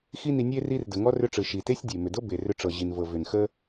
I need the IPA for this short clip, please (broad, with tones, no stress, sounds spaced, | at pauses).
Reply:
x i˦ n i˧ nʲ e˦ r i˧ r d ə˨ ŋ ɔ˧ r ʏ˧ ʈ͡ʂ ɯ˨ ʃ i˨ t e˦ sʲ dʲ e˨ m ʏ˨ d ɤ˦ b e˨ r ʏ˧ ʈ͡ʂ ɤ˨ ʑ i˨ n v ɤ˨ v ʏ˨ n x ə˦